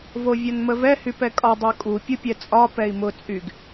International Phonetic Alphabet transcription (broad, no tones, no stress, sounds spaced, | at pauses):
v o vʲ ɒ n m ə v ɛ h y p ɛ kʼ ɒ dˤ ə˞ kʼ u pʲ u pʲ ɛ t͡sʼ ɒ p ɛ i̯ m ʊ t͡sʼ y ɡ